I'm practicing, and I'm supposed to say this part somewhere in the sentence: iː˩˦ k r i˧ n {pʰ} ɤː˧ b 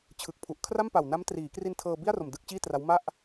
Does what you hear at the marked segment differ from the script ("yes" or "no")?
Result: yes